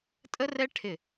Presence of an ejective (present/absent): present